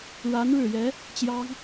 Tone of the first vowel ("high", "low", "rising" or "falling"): rising